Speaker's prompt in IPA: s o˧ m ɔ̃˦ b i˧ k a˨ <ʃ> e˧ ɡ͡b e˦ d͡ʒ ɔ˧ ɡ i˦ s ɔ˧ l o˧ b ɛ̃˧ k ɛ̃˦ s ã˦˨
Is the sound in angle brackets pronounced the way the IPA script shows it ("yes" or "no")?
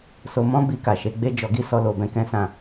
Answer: yes